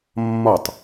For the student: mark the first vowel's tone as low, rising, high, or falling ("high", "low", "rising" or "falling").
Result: falling